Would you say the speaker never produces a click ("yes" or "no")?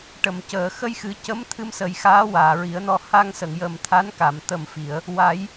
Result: yes